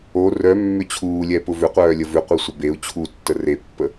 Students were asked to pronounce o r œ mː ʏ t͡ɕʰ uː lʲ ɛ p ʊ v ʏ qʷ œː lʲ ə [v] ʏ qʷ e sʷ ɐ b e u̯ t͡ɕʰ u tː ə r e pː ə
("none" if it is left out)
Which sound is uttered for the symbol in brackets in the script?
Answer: v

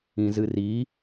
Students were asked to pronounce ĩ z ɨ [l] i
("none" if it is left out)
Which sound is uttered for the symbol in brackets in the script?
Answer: r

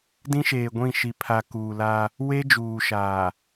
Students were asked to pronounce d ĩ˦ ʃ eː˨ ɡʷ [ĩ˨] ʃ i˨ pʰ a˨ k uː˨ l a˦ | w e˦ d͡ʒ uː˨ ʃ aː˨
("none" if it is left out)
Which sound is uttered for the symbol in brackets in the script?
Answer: ĩ˦˨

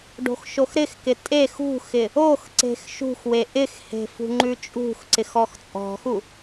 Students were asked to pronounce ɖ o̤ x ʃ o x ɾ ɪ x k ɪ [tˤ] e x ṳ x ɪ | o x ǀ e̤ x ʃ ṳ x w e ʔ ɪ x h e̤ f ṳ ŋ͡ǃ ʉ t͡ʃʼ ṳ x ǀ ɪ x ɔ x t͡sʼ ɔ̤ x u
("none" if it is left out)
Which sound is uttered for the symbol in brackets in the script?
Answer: tʼ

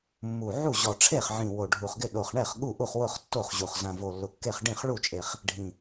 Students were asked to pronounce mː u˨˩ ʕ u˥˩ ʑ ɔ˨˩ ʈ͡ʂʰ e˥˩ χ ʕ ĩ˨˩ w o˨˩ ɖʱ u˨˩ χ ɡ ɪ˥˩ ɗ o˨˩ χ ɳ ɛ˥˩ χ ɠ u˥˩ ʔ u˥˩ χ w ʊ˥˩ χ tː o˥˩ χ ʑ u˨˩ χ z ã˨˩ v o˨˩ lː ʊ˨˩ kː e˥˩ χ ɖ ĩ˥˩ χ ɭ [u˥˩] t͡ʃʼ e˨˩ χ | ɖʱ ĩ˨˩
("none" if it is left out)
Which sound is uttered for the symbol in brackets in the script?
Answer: u˥˩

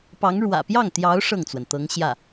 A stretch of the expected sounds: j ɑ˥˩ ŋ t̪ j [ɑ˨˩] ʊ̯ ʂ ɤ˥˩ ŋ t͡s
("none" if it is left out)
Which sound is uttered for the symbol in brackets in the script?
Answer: ɑ˧˥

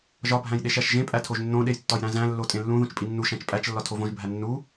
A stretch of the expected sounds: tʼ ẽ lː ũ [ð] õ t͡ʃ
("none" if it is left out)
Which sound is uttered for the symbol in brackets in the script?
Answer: ð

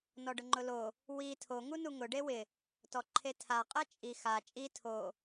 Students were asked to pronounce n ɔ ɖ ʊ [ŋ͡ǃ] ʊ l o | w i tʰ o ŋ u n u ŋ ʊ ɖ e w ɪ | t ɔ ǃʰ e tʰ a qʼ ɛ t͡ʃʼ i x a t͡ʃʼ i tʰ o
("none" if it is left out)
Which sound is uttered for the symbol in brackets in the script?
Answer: ŋ͡ǃ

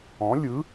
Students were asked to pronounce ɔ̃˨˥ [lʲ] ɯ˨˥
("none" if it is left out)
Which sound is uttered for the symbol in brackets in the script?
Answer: lʲ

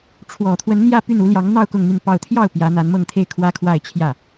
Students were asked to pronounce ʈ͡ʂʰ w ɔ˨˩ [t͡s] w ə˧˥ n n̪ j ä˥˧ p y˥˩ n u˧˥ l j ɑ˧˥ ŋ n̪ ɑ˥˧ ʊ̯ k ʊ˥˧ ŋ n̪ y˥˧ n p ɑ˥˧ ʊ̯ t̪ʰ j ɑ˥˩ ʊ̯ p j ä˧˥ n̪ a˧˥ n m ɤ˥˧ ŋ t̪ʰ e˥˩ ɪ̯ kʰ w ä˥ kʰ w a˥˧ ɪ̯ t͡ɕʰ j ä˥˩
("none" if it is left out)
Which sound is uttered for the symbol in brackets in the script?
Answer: t̪ʰ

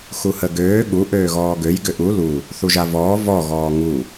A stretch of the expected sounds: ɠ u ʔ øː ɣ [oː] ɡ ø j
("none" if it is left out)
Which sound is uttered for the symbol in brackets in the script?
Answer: ɔː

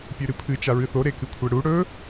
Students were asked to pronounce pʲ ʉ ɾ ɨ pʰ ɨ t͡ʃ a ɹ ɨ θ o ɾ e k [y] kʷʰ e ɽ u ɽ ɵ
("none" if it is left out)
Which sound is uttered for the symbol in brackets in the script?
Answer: ɨ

